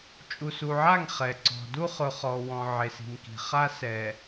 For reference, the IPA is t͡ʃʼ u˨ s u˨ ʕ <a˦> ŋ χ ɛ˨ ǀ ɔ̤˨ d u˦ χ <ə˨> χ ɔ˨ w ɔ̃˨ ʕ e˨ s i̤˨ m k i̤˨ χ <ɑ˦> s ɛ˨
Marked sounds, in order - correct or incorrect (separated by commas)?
incorrect, incorrect, incorrect